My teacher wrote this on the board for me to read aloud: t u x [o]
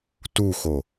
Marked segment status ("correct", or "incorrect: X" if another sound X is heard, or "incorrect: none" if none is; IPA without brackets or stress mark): correct